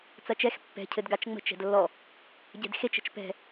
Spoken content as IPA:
t͡s ɐ t͡ʃ ɛ x pː ɛ̤ cʰ ɘ d ɡ a t͡ʃ ŋ͡m ə̤ t͡ʃ ɛ̤ d lː ɔ | ɟ ɛ̤ d x e t͡ʃ ə̤ t͡ʃ p ɛ̤

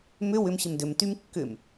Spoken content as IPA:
m ʏ w ʏ m ɕ ɪ m d ʏ m t y m kː ʏ m

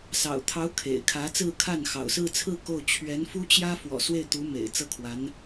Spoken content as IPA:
s ɑ̰˨˩ ʊ̯ t̪ʰ ɑ˧˥ ʊ̯ kʰ ḛ˨˩ ɪ̯ kʰ ä˧˥ t͡s ɹ̩˥˧ kʰ a˥˩ n x ɑ̰˨˩ ʊ̯ s ɹ̩˥˧ t͡sʰ ɹ̩˥˧ k o˥˩ ʊ̯ t͡ɕʰ ɥ ɛ˧˥ n f u˥ t͡ɕ j ä˥ f w ɔ̰˨˩ s w e˥˩ ɪ̯ t̪ u˧˥ m ḛ˨˩ ɪ̯ t͡s ɤ˥˩ kʰ w a˧˥ n

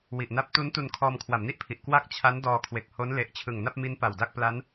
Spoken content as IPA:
w i˨˩ ʔ n a˦˥ p̚ t u˦˥ n t u˧ n kʰ ɔː˧ m kʰ w a˩˦ m n i˦˥ ʔ pʰ i˨˩ ʔ k w a˥˩ k̚ t͡ɕʰ a˦˥ n d ɔː˧ kʰ w e˨˩ k̚ h o˦˥ n l e˨˩ ʔ t͡ɕʰ ɯ˨˩ ŋ n a˥˩ p̚ m i˦˥ n p a˨˩ w d a˥˩ k̚ p l a˦˥ n

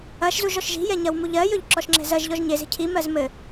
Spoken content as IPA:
ɐ ʃ z u ʒ ɔ ʃ ʒ i̤ j ɛ ɲ ɐ w m u ʎ ɜ j ɵ ʎ ǁ ɔ ʃ ŋ͡ǁ ɛ̤ z ɜ ʒ ʎ ɔ ʒ ɲ e z e̤ cʰ i m ɜ z m ɘ

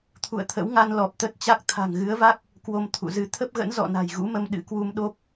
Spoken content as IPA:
t̪ʰ ṵ˧˨ ə̯ t̪ʰ ə̰˧˥ w ŋ a˧ n l ɔ˨˩ p̚ t̪ ə˦˥ t̚ t͡ɕ a˦˥ k̚ t̪ʰ a̤˨˩ ŋ ɣ ɨ˨˦ ə̯ v a˦˥ k̚ | k w o˧ m t̪ʰ ṵ˧˨ z ɨ˨˦ t̪ʰ ə˦˥ p̚ ɣ ə̰˧˥ n z ɔ̰˧˨ n a̤˨˩ j ɣ ṵ˧˥ m ə˧ m ɗ ɨ̰˧˥ k w u˧ m ɗ o˦˥ p̚

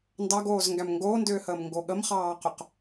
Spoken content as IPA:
n d ɑ ɡ oː z ŋ ɡ æ m ŋ ɡ oː n d ʏː h əː m ŋ ɡ o ɠ ə m χ ɑː q ʏ q

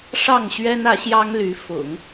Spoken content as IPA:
ʂ ɑ˥˩ ŋ ɕ ɥ ɛ˥ n ä˧˥ ɕ j ɑ˥ ŋ l y˧˥ f ʊ̰˨˩˦ ŋ

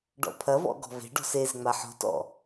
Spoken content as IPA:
ɖ ɔ̰ pʰ ɐ v ɔ̰ ɡ ɔ̤ v e̤ ɖ ɔ̤ s e z ŋ͡m a ħ ɔ̤ t ɔ̰

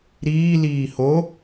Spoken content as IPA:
ɾ iː l iː h o

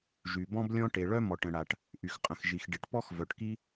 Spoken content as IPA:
ʒ y˩ b ɔ̃˥ b lʲ ɔ̃˥ ʈ e˩ ɭ œ˥ m ɔ˩ ʈ ə̃˩ ɽ a˩ ʈ | ʔ y˩ x qʼ ə̃˩ x ʒ i˩ x ɖ i˩ ʈ p ɔ˥ x v œ˩ ʈ k i˥

